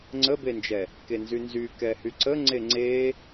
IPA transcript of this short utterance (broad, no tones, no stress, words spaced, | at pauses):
ŋ͡ǀəbend͡ʒɛ | kenzynzy kɛhyǀə ŋ͡ǀeŋ͡ǀe